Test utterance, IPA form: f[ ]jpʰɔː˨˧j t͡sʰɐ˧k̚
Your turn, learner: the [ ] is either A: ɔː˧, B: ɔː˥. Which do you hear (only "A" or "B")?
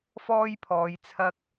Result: B